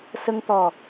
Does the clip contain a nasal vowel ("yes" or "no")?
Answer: no